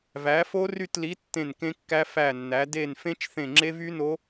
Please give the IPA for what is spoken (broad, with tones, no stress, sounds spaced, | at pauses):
v æ˨˥ f o˦˥ r y˦˨ t l i˨˥ tː ẽ˦˨ n k ẽ˦˥ kː æ˦˥ f æ˦˨ nː æ˨˥ d e˦˨ n f ẽ˦˥ t͡ʃ θ ẽ˦˨ ŋ͡ǁ e˦˥ v y˦˥ n o˦˥